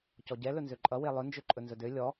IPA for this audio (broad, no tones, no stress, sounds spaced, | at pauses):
c ɔ ɟ ɛ l ɵ n z ø ǃʼ ʌ w e lˠ ɵ n d͡ʒ ø ǃʼ ɵ n z ɵ d ø lʲ ɔ